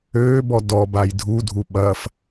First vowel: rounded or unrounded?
rounded